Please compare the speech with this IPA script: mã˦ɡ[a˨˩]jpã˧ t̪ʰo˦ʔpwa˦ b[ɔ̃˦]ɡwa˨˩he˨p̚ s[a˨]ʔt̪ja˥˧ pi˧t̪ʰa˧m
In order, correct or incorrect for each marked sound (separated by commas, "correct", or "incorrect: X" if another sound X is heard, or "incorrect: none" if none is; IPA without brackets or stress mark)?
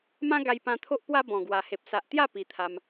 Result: incorrect: a˧, incorrect: ɔ̃˨˩, correct